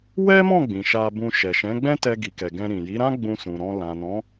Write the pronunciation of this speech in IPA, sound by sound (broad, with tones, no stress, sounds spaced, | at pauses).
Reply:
w ɛ˦ m ɔ̃˦˨ ɡ͡b ĩ˨ ʃ a˧ b ũ˧ ʃ ɛ˨ ʃ ɛ̃˨˦ ɡ͡b ɛ̃˦ t ɛ˧ ɡ i˨ k ɛ˨ ɡ ɛ̃˧ ɾ ĩ˨ j i˨˦ ɾ ã˦ ɡ͡b ũ˧ s ũ˨ ɾ ɔ̃˧ l ã˨ n ɔ̃˨˦